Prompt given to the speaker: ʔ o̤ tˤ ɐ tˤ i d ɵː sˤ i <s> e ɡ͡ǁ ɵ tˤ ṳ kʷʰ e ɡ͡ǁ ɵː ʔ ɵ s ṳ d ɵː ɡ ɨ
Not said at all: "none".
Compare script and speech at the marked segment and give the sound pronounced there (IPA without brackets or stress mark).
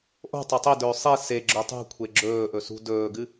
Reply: s